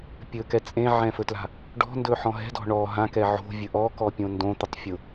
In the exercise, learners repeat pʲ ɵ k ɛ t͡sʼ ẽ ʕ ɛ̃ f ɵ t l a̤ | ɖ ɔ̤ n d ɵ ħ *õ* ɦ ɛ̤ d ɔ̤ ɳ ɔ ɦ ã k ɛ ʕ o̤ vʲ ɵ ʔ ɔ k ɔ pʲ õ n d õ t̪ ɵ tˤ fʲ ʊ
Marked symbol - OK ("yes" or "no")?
no